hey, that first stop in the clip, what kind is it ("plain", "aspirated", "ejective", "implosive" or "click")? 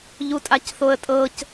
ejective